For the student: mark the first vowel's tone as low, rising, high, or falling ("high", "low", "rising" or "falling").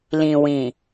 low